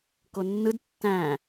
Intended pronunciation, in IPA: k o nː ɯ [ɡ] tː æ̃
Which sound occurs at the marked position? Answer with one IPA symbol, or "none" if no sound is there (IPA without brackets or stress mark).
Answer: d